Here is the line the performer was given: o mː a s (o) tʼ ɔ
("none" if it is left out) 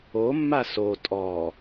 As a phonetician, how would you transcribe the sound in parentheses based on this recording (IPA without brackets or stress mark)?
o